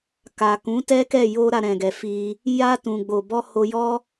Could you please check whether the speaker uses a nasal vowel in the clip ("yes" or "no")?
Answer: yes